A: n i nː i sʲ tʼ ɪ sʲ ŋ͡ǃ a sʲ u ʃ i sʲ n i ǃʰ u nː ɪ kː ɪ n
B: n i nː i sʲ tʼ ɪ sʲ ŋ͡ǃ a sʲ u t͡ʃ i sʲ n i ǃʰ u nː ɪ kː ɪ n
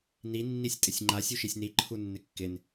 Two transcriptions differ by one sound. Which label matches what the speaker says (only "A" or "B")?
A